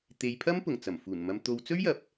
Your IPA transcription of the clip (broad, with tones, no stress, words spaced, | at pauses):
t̪e˨˧jpʰɐ˥m pʊ˨˩ŋt͡sɐ˨˩mfuː˨˩nmɐ˧m t̪o˨˧wt͡sɵ˥ɥjɐ˨˥p̚